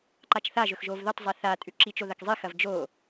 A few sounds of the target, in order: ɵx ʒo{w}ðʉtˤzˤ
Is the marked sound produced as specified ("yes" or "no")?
no